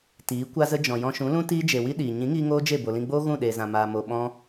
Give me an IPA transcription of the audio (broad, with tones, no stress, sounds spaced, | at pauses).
t iː˨˦ kʷ a˦ z ə˦ d͡ʒ ɔ̃˨ j ɔ̃˧ ʃ ũ˨˦ l ũ˦ t iː˦ d͡ʒ e˨ w i˦ ɗ iː˨ ɲ ĩ˨˦ ŋ iː˧ ŋ oː˦ d͡ʒ e˦˨ b o˨ l ĩ˧ ɡ͡b oː˦ ɣ ũ˦˨ ɗ eː˨ z ã˨ m aː˨ m o˨ ɓ ɔ̃˦